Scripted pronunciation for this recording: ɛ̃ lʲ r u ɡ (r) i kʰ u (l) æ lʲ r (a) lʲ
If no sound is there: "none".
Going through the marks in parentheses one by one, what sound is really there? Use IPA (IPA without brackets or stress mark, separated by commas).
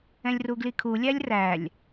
l, lʲ, æ